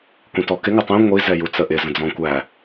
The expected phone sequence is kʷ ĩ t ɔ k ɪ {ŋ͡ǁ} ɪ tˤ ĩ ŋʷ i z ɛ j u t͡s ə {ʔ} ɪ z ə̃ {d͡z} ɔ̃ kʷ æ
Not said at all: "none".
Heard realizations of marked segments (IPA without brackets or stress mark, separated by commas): ŋ, ʔ, d͡z